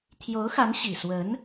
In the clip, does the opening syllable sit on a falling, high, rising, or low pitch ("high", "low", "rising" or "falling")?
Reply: rising